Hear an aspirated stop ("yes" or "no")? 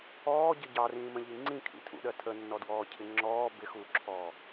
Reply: yes